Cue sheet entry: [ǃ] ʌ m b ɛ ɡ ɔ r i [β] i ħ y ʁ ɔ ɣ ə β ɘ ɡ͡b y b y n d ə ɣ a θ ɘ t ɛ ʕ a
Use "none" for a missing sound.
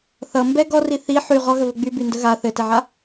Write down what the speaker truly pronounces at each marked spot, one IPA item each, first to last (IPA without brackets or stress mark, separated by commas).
θ, θ